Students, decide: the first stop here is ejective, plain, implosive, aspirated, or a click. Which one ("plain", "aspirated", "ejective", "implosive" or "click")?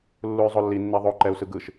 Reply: click